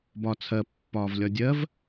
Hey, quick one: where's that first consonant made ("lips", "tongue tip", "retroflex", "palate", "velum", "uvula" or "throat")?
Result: lips